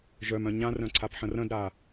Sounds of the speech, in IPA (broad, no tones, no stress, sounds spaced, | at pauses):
ʒ œ m œ̃ ɲ ã r œ̃ ǀʰ a p ħ ə̃ r ə̃ d ɾ a